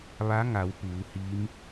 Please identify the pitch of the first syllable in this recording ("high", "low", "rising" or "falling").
rising